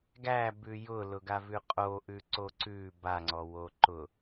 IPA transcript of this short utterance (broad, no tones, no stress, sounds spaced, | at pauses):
ɡ æ b ʉ j ʊ l ʊ ɡ a v ʉ qʼ o ʔ ʉ ǀ o ǀ ʉ b a ŋ͡ǀ ɔ w o ǃ ʊ